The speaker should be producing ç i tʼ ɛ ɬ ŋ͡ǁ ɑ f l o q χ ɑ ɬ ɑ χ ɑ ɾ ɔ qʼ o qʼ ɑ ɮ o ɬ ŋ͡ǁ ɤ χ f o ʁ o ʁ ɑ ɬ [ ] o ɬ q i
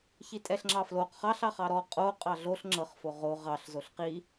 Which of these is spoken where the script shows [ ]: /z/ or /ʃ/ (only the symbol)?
z